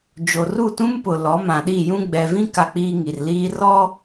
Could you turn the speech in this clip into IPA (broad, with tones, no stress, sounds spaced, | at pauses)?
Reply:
d͡ʒ o˨ r u˦˨ t ũ˦ m p ʊ˨ l ɔ˨˦ m ã˨ ɗ i˦˨ j ũ˦ ɡ͡b ɛ˨ v ĩ˦ k a˦ k͡p iː˦ ŋ i˨ r l iː˦ r ɔ˦